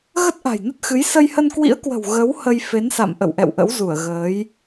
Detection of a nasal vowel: absent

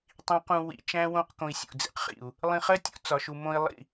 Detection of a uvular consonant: present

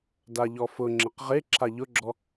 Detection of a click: present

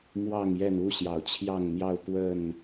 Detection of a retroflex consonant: absent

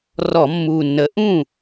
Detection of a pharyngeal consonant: absent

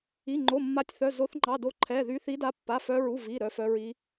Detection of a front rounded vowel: present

